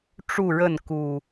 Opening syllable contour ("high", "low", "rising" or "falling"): falling